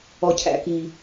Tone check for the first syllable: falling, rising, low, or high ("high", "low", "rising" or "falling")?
high